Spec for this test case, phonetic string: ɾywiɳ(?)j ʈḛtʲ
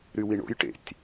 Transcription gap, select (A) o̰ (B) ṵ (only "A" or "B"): A